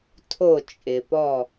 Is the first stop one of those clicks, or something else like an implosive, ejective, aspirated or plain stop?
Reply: aspirated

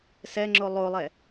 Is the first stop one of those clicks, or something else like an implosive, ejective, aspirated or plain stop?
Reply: click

